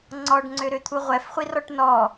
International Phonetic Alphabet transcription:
ŋ͡ǀ ɔ ɖ ŋ͡ǀ ø ɾ ø t̪ʰ u ʁʷ ɛ f χʷ i r ɔ ʈ n ɔ

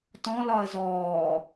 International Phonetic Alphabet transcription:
t ɔ̃ l ɒ ə̯ z ɔː

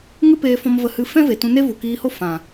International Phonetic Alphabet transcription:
ŋ ɨ˦ p eː˧ f ɔ̃˧ m v ə˧ h ɨ˧ f ɛ̃˦ v e˨ t ũ˧ n e˦ v u˨ k iː˧ h o˦ f ã˨

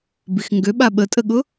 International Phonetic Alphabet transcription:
b i x ŋ ɡ ø ɓ a ɓ ə tʼ ə ɠ ʊ

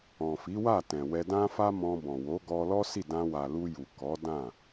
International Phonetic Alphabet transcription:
ɔ̃˨ f i˨˦ w a˦˨ t ɛ̃˨ w ɛ˧ d ã˦ f a˦ m ɔ̃˧ b ɔ̃˨ w o˨˦ ɡ ɔ˧ l ɔ˦ s i˦˨ d ã˧ w a˨ l u˧ j u˨ k ɔ˨˦ d ã˦˨

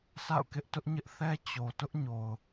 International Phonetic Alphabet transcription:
sʰ a̰˦˨ ʊ̯ k ɪ˦ ʔ t ʊ˦ ʔ ɲ ɪ˦ ʔ θ ɛ˦ t͡ɕ o˨ t ʊ˦ ʔ ɲ o˨ ʊ̯

